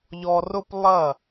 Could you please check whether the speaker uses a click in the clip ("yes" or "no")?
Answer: no